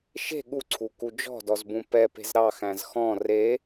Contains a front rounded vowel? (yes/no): no